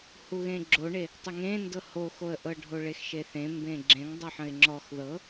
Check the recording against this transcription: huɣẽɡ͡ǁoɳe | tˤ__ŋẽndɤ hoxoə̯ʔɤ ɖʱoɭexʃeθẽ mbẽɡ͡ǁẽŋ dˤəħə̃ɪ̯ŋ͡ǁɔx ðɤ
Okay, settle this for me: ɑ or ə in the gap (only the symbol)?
ə